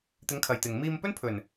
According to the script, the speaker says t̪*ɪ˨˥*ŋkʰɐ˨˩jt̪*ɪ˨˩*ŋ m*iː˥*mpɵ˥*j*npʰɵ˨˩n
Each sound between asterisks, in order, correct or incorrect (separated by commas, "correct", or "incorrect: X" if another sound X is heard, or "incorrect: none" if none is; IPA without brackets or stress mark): correct, correct, incorrect: iː˧, incorrect: none